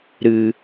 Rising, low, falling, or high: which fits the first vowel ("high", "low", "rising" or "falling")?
low